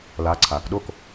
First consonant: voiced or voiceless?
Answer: voiced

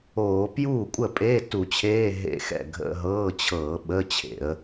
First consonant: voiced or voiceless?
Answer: voiceless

